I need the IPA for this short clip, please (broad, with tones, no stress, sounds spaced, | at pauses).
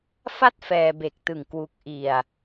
f a˥˩ t̚ f ɛː˧ b e˨˩ k̚ t ɯ˨˩ ŋ k w u˨˩ k̚ ʔ i˨˩ a̯